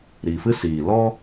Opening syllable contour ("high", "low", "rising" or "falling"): low